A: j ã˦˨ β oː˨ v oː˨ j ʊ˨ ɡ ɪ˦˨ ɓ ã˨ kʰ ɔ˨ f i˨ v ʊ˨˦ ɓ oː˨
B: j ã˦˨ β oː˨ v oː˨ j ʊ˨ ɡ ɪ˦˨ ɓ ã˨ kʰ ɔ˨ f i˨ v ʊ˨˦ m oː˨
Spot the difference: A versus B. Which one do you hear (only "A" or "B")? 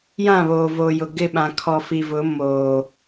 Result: B